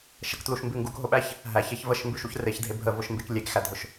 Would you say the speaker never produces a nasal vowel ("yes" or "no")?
yes